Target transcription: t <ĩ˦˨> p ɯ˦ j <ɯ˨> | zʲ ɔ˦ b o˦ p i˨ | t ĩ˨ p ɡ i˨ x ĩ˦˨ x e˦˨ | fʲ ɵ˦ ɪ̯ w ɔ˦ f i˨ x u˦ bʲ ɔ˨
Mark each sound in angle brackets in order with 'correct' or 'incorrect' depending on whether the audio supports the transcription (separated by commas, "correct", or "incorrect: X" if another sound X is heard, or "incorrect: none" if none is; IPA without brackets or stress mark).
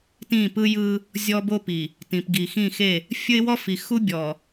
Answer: correct, incorrect: ɯ˦